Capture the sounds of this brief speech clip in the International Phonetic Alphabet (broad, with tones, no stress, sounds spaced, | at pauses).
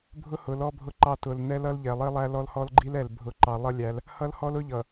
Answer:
bʱ ʊ˦ h ʊ˨˦ l ɔ˦ bʱ ʊ˦ ǃ ɑ˦˨ t ʊ˨ l n ɛ˦ l ʌ˦ l ʎ ɛ˨ lˠ i˦ lˠ æ˦ l ɔ˦ l h ɔ˦ l ɡ͡ǃ i˦ l ɛ˨ l bʱ ʊ˨ ǃ ɑ˨ lˠ ʌ˦ lʲ æ˨˦ l | h ʌ˦ l h ɔ˦ l ʊ˦ ʎ ʌ˨